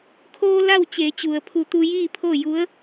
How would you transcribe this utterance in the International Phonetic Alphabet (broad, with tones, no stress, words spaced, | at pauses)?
kʰoː˧ la˥˨w t͡ɕeː˩˧t͡ɕu˩ə̯pʰu˧˩ t̪u˧jiː˥˨pʰo˥˨ ju˧˥ə̯